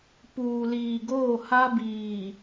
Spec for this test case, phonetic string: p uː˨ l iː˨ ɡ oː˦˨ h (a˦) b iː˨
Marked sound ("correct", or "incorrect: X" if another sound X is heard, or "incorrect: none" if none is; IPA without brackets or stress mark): correct